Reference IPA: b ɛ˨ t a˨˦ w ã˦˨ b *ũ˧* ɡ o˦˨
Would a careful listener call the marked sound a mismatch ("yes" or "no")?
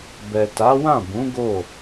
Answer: yes